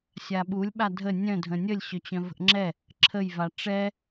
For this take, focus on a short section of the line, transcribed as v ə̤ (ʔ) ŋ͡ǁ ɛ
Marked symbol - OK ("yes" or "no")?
yes